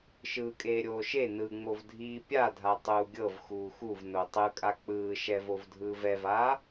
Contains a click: no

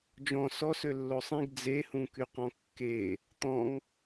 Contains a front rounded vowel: yes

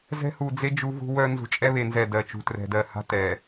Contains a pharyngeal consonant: no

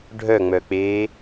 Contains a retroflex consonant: yes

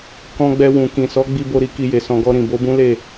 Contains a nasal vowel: yes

